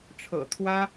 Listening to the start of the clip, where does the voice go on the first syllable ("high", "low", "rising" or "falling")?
low